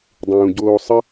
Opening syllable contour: low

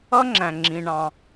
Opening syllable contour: high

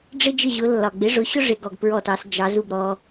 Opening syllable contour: high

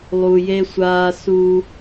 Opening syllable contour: low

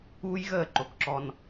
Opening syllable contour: high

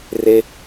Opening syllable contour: high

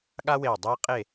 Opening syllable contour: high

